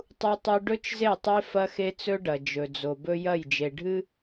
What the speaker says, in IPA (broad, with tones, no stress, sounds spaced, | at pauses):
tˤ u˦ tˤ ʉ˦ ɖ ɵ˦ t͡ʃ z e˦˨ tˤ e˦ f ɐ˦ x e˦ t͡s ɵ˦ ɖ ɐ˨ d͡ʒ ɵ˨ d͡z o˨ b ɵ˦ j ɐ˦˨ j d͡ʒ e˨ ɖʱ ɨ˦